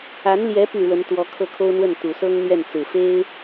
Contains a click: no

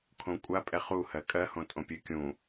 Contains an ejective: yes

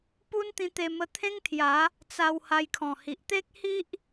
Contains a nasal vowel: yes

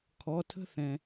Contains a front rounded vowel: no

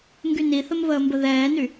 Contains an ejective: no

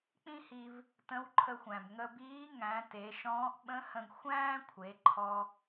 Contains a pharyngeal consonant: no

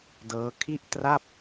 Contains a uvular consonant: no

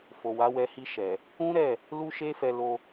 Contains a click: no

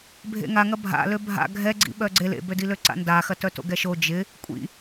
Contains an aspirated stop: no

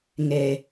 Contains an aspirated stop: no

